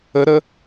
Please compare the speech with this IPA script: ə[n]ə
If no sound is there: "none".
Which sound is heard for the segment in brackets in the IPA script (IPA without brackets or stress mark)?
ɾ